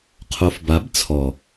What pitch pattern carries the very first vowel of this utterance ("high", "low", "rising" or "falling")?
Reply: low